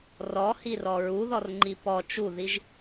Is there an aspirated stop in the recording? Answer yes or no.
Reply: no